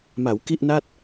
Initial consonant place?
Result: labial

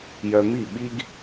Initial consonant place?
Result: palatal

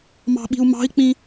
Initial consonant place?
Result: labial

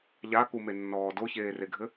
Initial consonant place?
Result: palatal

